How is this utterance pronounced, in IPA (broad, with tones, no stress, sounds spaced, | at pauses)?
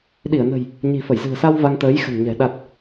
ɗ i˧˩ ə̯ n ə̤˨˩ j | ɲ i̤˨˩ f ə˧˩ j z ɨ̤˨˩ ə̯ s a˧ w v a˧ ŋ t̪ əː˨˦ j x ə̤˨˩ n ɲ ɛ̤˨˩ ɗ a˨˩ t̚